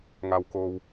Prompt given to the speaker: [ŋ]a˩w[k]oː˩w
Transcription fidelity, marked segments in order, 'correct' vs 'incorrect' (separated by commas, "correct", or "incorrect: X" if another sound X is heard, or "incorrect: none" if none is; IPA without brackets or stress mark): correct, correct